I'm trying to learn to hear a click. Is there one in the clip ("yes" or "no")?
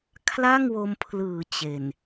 no